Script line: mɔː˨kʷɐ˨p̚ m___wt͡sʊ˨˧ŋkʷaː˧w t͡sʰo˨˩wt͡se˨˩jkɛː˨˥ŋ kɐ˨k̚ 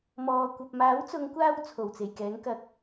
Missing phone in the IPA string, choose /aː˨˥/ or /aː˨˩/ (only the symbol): aː˨˥